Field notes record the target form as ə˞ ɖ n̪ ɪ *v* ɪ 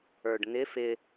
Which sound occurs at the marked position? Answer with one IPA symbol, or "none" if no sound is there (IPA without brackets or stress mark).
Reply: f